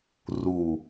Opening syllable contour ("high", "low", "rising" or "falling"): low